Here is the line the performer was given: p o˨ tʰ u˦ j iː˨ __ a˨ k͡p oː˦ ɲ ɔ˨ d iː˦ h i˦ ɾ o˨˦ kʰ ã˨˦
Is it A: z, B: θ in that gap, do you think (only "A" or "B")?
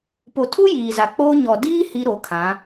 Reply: A